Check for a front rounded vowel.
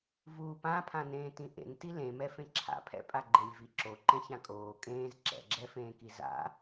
absent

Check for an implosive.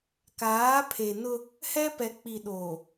present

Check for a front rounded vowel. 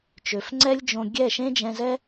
present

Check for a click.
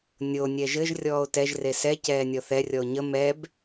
absent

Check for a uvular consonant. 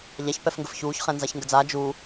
present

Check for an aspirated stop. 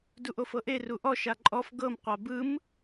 absent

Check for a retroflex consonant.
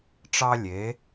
present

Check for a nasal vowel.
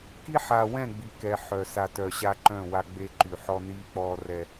present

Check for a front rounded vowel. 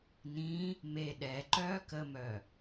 present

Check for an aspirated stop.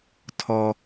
present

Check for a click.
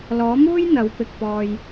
absent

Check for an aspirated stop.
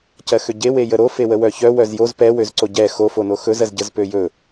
absent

